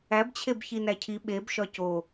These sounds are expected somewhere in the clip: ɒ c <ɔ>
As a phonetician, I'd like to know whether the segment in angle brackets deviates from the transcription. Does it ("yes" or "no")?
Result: yes